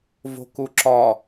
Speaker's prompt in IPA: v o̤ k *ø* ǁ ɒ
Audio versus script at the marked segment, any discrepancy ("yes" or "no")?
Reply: yes